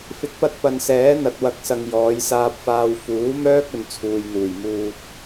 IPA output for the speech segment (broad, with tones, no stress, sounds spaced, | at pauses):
f ɪ˨˥ k̚ p ɐ˧ t̚ p ɐ˨ n s ɛː˨˥ n̪ ɐ˨ t̚ w ɐ˨˥ k̚ s ɐ˨ ŋ j ɔː˨˧ j s aː˧ p̚ f aː˧ w f uː˨˥ m œː˥ k̚ ɵ˨ n t͡sʰ uː˨ j n̪ uː˨˩ j m uː˧ t̚